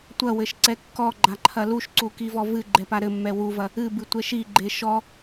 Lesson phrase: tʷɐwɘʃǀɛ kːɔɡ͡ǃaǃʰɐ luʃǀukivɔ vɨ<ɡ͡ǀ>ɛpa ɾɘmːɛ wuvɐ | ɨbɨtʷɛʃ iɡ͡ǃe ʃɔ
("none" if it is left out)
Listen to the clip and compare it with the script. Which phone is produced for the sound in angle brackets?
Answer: ɡ͡ǃ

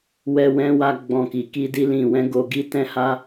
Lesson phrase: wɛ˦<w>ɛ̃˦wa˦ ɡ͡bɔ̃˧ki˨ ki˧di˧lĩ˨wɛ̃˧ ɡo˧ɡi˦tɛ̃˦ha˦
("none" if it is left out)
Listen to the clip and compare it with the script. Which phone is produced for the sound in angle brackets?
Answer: w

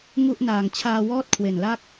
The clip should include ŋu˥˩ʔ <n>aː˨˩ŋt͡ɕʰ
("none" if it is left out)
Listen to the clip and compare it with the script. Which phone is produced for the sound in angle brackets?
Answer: n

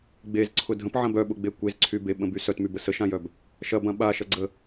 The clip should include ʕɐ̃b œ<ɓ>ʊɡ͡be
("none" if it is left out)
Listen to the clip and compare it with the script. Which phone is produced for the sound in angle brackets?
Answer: ɓ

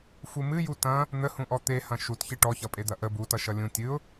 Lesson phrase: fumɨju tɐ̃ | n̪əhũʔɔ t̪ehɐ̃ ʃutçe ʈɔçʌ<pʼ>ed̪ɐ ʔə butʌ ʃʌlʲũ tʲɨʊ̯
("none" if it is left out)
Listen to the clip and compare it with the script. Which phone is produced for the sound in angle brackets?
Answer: pʼ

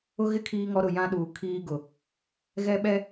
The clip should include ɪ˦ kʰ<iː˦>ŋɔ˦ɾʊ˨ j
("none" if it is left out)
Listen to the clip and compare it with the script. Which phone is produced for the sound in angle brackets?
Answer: iː˦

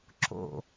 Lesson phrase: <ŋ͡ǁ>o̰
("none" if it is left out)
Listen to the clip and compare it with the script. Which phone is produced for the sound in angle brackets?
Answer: ǁ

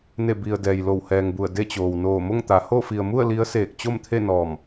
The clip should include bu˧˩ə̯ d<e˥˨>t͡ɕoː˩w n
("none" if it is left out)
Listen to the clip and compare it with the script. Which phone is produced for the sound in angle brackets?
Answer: e˥˨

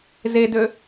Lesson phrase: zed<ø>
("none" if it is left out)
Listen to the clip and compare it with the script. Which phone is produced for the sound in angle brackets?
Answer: ø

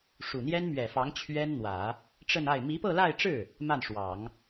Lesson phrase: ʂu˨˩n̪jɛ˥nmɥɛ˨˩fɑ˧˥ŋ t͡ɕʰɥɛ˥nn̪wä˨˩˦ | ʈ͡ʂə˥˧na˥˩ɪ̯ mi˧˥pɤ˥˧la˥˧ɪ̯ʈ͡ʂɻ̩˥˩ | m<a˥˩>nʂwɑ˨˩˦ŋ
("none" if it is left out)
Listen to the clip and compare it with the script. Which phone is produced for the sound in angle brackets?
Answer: a˥˩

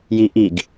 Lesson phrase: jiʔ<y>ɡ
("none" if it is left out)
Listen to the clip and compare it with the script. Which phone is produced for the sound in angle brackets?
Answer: i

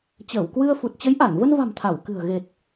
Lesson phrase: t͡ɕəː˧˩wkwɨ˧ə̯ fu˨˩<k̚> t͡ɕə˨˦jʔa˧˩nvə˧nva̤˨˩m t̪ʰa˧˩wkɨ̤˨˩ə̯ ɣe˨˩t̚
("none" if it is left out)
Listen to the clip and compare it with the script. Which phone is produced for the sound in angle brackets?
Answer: t̚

